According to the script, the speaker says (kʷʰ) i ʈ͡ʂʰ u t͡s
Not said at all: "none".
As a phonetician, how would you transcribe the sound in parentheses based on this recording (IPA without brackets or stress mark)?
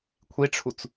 kʷʰ